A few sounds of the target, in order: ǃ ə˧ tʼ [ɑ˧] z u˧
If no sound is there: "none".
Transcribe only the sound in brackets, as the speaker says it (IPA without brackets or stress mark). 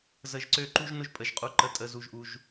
ə˧